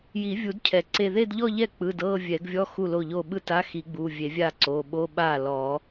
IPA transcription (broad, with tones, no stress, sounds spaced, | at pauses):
j i˨˩˦ vʲ u˨˩˦ d cʰ ɛ˨˩˦ ǀ e˥˧ ð e˥˧ d ʎ ɔ˥˧ ʎ ɛ˥˩ k͡p ɯ˩˧˩ d ɤː˥˧ vʲ ɛ˨˩˦ ɡ vʲ ɔ˧˥˧ x u˥˩ l o˥˩ ʎ o˥˩ ɓ ɯ˥˩ t a˧˥˧ x i˨˩˦ ɡ͡b u˩˧˩ vʲ e˨˩˦ vʲ a˥˩ ǀ o˩˧˩ ɓ o˧˥˧ ɓ aː˥˩ l ɔː˨˩˦